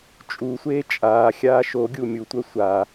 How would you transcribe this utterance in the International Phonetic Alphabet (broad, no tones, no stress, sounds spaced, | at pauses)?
t͡ʃʼ u sʷ eː t͡ʃʼ aː xʲ aː ʃ o ɡʲ u mʲ u tʷ œ sʷ a